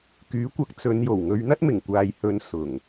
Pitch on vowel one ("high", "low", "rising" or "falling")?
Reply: rising